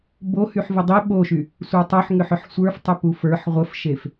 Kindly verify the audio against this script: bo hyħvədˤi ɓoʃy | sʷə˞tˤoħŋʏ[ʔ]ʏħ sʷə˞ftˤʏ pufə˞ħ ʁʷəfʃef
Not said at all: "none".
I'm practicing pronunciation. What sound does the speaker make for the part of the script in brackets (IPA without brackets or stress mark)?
ħ